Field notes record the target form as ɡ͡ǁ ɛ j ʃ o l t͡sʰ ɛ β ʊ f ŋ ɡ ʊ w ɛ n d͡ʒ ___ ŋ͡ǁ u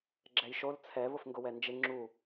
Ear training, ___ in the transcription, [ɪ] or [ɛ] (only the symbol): ɪ